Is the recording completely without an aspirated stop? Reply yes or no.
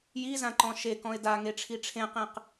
no